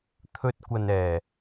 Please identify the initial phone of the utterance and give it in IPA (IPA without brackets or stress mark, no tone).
t̪ʰ